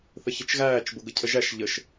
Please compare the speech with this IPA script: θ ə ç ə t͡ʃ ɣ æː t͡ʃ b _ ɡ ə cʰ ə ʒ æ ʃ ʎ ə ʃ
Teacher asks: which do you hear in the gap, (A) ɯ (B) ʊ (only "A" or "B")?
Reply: B